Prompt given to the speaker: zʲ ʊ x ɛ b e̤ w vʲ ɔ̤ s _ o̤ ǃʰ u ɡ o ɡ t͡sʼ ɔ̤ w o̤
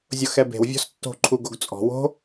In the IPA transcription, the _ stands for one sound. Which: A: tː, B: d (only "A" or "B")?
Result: A